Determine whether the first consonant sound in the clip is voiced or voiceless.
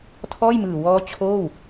voiceless